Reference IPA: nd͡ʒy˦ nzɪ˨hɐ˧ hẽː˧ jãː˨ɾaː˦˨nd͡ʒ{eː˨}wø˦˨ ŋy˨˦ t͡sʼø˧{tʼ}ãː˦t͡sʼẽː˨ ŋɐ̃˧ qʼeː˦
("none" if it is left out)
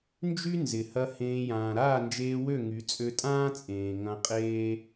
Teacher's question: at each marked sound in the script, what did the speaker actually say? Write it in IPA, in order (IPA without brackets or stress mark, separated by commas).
eː˧, tʼ